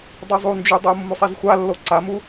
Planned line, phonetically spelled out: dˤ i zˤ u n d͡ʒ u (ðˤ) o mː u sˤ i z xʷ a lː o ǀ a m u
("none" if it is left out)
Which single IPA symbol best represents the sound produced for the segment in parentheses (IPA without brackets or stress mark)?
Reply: dˤ